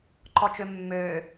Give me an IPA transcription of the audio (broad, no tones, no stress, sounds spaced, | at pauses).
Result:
ǃ ɔ t͡ʃ ø mː øː